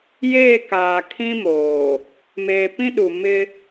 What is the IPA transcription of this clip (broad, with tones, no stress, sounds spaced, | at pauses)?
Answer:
j eː˦˨ k aː˨ kʰ ĩ˦ m oː˨ | m eː˨ p ĩ˦ ɗ u˨ m ɪ˦